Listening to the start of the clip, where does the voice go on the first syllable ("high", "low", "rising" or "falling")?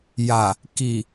low